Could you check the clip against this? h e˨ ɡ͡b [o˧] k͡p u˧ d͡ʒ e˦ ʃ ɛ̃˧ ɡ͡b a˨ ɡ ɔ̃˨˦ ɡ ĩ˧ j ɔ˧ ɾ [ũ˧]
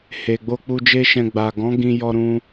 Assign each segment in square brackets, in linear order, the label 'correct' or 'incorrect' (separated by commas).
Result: correct, correct